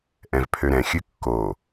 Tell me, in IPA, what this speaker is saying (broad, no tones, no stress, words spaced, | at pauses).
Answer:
ʔɛ̃vpʰøɾɛ̃ xʲɨkːo